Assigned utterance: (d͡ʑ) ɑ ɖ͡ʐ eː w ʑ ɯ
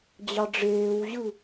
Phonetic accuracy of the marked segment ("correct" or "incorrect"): correct